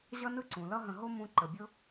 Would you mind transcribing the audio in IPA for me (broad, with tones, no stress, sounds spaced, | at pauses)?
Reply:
ʑ ʌ˥ n ɯ˥ ǀ ũ˩ l ʌ˥ ɦ ə̃˨ ɦ o˥ m ũ˦ ǃ ə˩ bʲ ʊ˥